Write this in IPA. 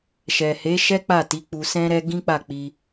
ʃ ɛ˨ h e˨˦ ʃ ɛ˦ k͡p a˦˨ t i˨˦ k͡p u˧ s ɛ̃˦ ɾ ɛ˦ ɡ ĩ˦ k͡p a˦˨ k͡p i˧

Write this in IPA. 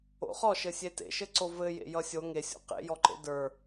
o̰ χ ɔ ʃ ɘ sʲ e t ḛ ʃ ɘ ǀ o v ɘ j ḛ j ʌ sʲ o ŋ e sʲ o̰ q ḛ j ɔ ǃ ḛ d ə˞

